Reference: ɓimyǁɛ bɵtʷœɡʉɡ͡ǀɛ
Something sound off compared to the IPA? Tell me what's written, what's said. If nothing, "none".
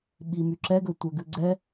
b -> ɡ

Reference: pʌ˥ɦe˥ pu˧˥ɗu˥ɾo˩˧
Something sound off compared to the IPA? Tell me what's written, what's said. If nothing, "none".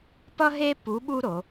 ɗ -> ɓ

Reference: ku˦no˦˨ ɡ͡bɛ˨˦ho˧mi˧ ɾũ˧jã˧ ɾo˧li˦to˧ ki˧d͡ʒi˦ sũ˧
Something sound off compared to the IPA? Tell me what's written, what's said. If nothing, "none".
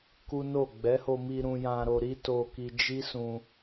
l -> ɾ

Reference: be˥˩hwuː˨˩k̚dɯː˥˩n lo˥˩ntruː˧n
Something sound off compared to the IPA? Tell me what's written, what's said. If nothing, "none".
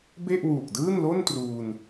h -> ʔ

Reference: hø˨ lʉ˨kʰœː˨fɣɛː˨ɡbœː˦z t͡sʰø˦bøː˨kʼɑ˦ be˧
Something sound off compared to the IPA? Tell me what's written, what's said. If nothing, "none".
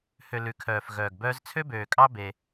ɛː˨ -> œː˨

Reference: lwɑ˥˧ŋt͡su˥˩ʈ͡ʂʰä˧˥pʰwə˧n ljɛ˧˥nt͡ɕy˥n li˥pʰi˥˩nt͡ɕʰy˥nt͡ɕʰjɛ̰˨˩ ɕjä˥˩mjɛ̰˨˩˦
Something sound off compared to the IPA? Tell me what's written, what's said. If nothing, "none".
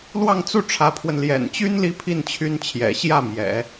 ɛ˧˥ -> ɛ̰˨˩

